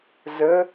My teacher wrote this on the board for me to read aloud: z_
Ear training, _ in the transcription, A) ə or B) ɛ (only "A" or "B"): A